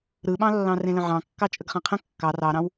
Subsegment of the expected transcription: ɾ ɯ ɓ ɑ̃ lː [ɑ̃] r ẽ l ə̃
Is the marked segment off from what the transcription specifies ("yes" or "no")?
no